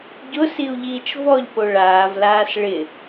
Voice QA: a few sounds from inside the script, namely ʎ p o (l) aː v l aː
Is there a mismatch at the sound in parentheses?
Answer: yes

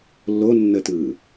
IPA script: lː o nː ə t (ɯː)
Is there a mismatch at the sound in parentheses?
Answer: no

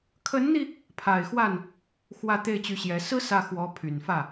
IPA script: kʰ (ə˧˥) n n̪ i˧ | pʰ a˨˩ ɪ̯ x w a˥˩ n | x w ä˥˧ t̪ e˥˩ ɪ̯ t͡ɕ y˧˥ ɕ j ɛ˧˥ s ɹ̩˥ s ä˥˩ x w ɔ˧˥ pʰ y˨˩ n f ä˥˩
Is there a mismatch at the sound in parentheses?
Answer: no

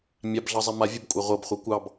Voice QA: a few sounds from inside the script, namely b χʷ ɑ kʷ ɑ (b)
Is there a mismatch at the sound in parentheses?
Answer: no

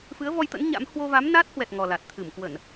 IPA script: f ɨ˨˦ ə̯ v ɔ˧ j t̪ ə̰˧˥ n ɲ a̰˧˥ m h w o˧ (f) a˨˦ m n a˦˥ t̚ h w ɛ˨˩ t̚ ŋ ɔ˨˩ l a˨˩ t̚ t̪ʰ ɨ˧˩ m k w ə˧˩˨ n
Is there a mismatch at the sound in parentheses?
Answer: yes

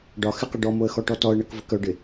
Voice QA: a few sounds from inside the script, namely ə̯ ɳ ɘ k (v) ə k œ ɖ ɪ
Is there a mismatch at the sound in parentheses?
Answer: no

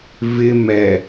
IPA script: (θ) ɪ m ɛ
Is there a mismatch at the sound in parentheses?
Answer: yes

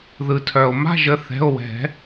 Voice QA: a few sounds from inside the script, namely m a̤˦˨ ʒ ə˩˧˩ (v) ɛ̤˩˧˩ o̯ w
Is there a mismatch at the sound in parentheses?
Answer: yes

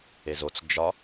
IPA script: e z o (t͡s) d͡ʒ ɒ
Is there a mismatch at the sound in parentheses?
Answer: no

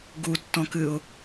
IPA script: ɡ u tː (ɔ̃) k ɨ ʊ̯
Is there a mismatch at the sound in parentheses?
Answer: no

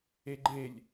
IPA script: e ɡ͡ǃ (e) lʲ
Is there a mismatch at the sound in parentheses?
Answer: no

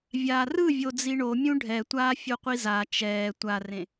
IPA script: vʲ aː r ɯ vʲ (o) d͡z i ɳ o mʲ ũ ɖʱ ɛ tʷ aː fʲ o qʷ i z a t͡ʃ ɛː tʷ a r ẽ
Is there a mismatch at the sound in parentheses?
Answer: no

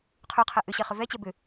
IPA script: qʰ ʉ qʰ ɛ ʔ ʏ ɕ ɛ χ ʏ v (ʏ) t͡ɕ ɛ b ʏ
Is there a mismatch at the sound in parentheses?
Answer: yes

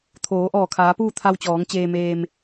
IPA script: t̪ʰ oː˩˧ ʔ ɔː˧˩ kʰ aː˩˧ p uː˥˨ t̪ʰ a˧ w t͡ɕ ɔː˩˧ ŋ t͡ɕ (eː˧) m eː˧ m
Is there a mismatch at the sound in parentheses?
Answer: no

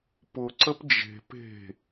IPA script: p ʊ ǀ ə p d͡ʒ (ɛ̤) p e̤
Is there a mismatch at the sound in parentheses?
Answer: yes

